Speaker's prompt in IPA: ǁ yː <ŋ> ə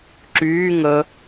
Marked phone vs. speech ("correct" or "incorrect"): correct